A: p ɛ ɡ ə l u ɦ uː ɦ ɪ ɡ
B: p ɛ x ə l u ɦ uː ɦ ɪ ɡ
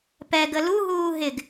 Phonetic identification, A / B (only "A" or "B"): A